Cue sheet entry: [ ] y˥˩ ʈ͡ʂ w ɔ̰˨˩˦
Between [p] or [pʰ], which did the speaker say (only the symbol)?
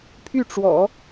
pʰ